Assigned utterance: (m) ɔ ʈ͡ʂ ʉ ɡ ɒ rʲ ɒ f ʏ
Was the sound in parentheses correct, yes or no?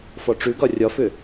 no